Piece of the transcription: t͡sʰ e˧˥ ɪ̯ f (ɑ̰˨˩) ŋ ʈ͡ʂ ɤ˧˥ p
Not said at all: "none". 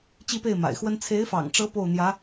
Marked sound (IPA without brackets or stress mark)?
ɑ̰˨˩